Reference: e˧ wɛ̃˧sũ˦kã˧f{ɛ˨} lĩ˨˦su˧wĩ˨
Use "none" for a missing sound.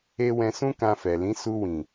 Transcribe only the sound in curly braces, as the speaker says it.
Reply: ɛ˨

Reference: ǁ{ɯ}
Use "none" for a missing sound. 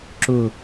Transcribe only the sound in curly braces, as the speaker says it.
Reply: ʊ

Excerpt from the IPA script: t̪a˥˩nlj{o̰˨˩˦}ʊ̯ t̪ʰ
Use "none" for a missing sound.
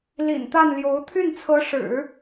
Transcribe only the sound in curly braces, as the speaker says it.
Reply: o˧˥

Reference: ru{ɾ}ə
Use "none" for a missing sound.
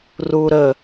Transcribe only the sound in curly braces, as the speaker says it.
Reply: ɾ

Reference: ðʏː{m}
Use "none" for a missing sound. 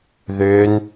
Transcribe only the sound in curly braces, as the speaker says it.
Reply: n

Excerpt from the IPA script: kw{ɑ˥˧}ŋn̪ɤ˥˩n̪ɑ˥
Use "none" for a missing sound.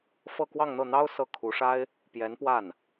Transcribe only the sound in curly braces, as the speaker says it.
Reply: ɑ˥˧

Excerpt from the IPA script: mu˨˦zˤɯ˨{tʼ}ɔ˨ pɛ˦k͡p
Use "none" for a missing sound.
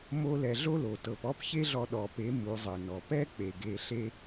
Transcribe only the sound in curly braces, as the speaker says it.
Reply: n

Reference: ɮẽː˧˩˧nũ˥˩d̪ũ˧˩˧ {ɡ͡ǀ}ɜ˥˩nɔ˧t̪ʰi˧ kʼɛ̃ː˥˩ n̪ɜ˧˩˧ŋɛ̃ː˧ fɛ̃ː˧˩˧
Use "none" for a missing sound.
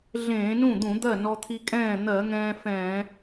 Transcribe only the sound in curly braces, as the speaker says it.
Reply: d̪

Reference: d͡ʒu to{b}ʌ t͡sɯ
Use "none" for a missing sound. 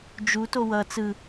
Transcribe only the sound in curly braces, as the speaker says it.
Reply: w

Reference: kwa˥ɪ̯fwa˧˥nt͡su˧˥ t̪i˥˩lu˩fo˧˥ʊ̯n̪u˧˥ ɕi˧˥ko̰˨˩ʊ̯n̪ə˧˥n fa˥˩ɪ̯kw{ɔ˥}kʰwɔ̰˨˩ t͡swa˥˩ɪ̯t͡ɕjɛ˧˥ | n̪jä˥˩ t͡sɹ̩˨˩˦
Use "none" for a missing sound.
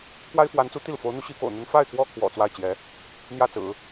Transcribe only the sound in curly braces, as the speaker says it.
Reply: ɔ˥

